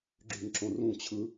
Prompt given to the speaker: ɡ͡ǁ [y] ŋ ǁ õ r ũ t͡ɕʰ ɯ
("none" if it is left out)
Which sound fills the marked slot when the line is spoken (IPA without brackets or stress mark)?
y